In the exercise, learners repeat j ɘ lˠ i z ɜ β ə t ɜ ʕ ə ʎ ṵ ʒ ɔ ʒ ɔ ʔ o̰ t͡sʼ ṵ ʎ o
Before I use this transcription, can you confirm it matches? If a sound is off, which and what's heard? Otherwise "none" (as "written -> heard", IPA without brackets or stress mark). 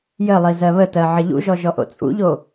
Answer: none